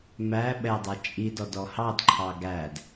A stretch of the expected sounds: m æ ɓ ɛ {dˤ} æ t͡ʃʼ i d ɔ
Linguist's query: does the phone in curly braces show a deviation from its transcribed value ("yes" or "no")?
no